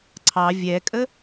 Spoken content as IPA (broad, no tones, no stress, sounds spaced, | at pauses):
ǀʰ ɑ vʲ ɛ kʼ ə